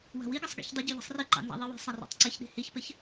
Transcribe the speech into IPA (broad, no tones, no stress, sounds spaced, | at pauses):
w a̤ w i ɡ ɜ sˤ ɡ ḭ ç dˤ ɪ ɟ y ʎ i̤ sˤ r i ǃ ɑ̰ n z a̰ ðˤ i w i̤ sˤ a r ɑ̰ tˤ ǀ ɪ ç ɗ i̤ h i ç p ɪ ç